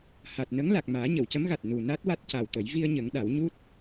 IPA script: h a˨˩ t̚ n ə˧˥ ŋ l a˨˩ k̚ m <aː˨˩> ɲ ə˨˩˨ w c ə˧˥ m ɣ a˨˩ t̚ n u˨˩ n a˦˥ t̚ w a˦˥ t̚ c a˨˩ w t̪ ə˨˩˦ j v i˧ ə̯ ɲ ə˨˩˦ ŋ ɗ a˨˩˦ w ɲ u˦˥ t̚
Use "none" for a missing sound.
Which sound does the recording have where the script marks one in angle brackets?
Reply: aː˨˩˦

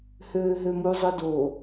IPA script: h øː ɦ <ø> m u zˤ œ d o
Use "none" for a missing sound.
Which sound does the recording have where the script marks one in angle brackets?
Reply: ø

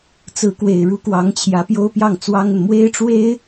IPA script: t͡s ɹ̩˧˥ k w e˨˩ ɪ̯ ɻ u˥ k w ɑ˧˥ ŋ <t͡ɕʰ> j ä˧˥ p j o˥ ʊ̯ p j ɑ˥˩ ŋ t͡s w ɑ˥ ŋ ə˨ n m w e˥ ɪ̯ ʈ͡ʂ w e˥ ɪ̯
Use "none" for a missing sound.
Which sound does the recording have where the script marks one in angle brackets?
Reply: t͡ɕʰ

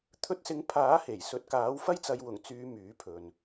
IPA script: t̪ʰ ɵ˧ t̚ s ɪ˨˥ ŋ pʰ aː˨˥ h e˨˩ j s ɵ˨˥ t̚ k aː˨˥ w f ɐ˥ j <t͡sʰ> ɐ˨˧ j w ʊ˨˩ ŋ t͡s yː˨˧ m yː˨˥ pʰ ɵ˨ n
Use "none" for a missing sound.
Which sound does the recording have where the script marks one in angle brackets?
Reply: t͡s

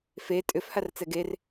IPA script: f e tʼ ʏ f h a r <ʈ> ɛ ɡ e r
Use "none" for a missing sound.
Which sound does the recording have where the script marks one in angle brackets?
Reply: t͡s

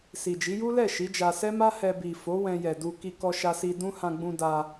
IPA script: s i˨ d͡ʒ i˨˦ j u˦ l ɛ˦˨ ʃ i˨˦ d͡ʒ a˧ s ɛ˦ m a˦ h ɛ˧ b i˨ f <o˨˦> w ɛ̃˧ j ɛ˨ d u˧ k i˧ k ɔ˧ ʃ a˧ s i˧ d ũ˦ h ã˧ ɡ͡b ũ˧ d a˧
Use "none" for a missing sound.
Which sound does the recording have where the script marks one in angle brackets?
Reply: o˨˦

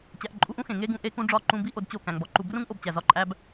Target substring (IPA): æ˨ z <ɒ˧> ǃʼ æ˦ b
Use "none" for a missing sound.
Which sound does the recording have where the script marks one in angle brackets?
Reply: ɒ˧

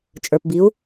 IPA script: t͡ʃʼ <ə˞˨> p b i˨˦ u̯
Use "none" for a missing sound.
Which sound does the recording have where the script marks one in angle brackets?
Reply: ə˞˨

